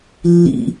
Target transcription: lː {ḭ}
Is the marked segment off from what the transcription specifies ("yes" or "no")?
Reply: no